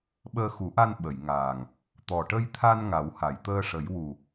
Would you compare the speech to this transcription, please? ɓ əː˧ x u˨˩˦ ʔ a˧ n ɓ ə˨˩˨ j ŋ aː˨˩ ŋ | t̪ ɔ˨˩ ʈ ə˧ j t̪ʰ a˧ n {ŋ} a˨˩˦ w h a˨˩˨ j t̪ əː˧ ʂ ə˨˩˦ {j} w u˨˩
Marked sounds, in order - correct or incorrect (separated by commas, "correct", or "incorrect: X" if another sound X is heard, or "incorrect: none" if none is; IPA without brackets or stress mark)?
correct, correct